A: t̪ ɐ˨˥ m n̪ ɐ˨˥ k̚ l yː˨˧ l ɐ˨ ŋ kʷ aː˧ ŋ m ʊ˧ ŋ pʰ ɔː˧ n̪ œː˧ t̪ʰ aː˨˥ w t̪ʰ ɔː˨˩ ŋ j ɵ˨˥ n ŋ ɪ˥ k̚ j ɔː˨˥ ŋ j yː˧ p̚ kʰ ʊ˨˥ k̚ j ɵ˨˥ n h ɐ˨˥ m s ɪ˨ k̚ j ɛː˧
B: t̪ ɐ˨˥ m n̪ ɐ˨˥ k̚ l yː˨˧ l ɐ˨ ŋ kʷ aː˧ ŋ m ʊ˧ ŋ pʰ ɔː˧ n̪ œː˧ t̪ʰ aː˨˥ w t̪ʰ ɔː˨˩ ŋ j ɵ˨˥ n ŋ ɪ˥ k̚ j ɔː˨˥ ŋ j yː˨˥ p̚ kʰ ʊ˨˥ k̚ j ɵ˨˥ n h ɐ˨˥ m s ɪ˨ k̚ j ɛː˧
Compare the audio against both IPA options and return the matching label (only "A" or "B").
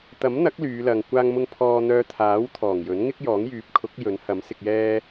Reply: B